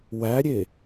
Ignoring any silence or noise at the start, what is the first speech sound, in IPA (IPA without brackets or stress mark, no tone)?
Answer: w